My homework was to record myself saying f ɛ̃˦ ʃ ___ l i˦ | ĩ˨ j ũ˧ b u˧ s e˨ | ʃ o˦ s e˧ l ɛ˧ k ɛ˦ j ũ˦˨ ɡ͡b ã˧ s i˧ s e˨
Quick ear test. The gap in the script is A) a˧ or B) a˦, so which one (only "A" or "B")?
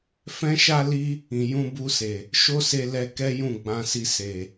B